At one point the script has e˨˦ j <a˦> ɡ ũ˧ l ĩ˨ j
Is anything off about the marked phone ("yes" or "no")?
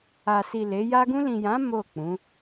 no